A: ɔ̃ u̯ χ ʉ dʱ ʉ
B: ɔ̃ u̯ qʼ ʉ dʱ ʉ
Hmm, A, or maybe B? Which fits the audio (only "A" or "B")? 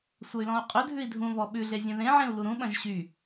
B